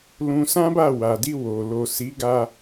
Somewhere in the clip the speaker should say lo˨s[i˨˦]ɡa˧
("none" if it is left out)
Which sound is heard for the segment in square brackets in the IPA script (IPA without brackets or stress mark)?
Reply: i˨˦